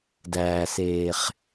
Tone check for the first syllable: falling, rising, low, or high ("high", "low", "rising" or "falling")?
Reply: low